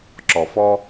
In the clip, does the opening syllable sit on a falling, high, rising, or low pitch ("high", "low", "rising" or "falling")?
low